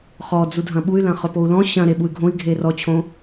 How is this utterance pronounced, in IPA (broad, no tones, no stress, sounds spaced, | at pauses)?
χ ɔ d͡z u dʱ ɐ̃ ɓ u y̯ l ɐ̃ χ ɵ p o u̯ l ɔ̃ ɕ ɐ̃ ɾ e ɓ u y̯ ɡʱ õ i̯ ɡʱ e r ɔ t͡ɕʰ õ